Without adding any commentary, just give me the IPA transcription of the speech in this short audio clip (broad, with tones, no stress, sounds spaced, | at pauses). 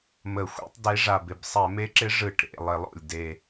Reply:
m ə˧˩˧ xʷ ḛ˧˥ tˤ d e˧˥ ʐ a˨˩ b ɪ˨˩ b sˤ ɛ˧˩˧ m e˧˥ ǁ ɪ˧˥ ʐ ɯ˧˩˧ ʈ ɾ ḛ˨˩ lˠ ɪ˧˩˧ lˠ o̰˨˩ lʲ d e˨˩